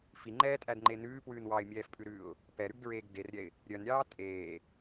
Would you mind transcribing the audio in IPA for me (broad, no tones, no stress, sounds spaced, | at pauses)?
f i ŋ͡ǃ ɛː tʼ æ d ŋ͡ǃ e n ʉː p w ʉː n w ɑ ɪ̯ mʲ ɛː f pʼ ʉ ɾ ʉː ʊ̯ | p ɛ ɾ ʉ ɡ d ɹ eː ɡ d e r ɾʲ ɛ ɪ̯ | ɾʲ œ n ɾʲ ɑː tʼ eː